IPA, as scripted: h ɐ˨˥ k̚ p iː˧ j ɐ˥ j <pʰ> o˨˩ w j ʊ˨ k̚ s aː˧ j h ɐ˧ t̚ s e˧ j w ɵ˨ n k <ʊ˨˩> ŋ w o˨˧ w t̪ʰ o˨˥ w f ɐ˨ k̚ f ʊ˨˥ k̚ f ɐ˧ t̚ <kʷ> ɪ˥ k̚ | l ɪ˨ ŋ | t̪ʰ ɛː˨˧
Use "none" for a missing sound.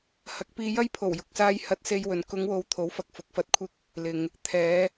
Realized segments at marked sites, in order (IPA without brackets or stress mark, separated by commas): pʰ, ʊ˨˧, kʷʰ